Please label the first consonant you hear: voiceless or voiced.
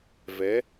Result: voiced